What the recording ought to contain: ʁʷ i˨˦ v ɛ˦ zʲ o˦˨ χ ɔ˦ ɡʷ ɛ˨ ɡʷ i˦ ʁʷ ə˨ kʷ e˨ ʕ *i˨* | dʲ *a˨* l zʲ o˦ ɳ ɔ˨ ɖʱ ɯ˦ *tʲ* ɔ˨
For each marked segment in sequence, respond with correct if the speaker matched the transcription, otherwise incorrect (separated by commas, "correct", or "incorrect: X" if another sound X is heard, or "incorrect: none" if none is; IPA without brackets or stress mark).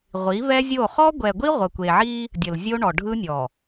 incorrect: i˦, incorrect: ə˨, incorrect: nʲ